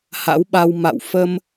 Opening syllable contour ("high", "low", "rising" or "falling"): rising